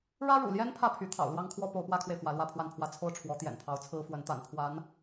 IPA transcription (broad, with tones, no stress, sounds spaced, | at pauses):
ɻ ä˥ ɻ ṵ˨˩ l j ɛ˥ n pʰ ä˥˩ pʰ y˧˥ t̪ʰ ɑ̰˨˩ ʊ̯ l w ɑ˥ ŋ kʰ w ɔ˥ p o˧˥ ʊ̯ p w ä˥ kʰ w e˨ ɪ̯ f w ä˧˥ l w ä˥ pʰ w a˥˧ n pʰ w ä˥˧ t͡sʰ o˥˩ ʊ̯ ʈ͡ʂʰ w ɔ˧˥ t̪ j ɛ̰˨˩ n t̪ʰ ɑ˧˥ ʊ̯ t͡sʰ ɹ̩˥ f w ə˧˥ n t̪ a̰˨˩ n pʰ w a˧˥ n